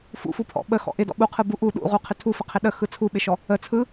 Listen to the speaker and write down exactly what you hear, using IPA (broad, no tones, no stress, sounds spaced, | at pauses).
f ṵ f u pʰ ɔ̰ ɓ ə x ɔ̰ ʔ ɪ d ɔ̰ ɓ u qʰ ɯ b u ʔ u ɗ ṵ ʁ u qʰ ɪ tʰ u f ə qʰ ɪ ɗ ə x ɯ t͡sʰ u ɓ ɪ ʃ ɔ | ə t͡sʰ ɯ